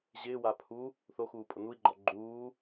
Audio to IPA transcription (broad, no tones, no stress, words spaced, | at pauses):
ʑɪːwa pʰu | θoxuːpʼʊ nui̯ɡ͡ǃɔ ɡ͡ǃuː